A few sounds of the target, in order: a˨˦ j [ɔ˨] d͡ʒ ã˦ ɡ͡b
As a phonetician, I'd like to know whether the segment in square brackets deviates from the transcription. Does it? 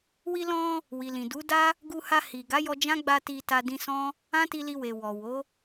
yes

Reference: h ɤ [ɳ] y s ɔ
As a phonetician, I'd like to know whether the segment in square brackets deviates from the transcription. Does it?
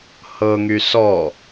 yes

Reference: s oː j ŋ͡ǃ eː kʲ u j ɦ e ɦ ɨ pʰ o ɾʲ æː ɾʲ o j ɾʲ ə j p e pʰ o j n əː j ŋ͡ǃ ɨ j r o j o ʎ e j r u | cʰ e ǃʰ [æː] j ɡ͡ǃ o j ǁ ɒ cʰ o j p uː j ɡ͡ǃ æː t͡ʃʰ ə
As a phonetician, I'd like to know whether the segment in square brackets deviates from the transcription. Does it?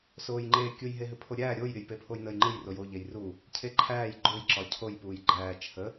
no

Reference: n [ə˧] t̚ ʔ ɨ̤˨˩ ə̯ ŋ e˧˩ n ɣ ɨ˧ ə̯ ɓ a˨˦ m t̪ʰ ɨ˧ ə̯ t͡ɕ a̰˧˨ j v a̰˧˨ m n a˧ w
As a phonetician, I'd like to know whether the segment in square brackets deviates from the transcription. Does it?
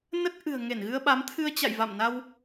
yes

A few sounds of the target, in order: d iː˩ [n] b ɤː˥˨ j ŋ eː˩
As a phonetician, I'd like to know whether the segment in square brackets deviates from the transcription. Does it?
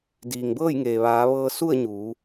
yes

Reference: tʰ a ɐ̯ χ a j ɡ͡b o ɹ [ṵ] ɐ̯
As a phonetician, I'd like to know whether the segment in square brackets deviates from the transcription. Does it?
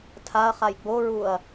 yes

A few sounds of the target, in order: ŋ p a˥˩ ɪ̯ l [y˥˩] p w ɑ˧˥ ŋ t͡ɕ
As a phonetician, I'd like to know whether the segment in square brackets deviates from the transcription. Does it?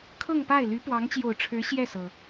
yes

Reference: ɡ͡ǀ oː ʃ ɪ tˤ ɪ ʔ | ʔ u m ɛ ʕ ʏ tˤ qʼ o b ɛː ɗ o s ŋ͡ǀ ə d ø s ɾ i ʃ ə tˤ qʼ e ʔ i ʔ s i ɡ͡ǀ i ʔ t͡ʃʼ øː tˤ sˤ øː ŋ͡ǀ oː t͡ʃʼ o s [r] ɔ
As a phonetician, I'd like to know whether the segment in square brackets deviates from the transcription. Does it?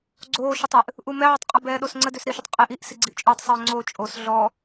yes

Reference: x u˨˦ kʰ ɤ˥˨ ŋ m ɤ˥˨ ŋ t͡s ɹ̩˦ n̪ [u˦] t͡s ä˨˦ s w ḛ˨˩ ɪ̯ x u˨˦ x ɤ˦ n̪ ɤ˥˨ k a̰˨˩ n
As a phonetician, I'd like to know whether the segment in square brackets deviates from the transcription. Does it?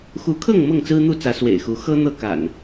yes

